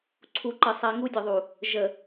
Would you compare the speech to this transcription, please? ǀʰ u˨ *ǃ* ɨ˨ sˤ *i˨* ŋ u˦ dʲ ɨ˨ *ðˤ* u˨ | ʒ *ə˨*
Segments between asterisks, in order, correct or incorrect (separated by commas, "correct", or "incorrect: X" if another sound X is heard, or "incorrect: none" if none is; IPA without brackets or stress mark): correct, correct, correct, correct